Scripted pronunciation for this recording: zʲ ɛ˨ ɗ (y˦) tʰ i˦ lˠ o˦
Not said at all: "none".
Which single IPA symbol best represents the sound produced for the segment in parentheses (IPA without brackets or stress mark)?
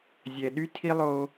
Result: y˦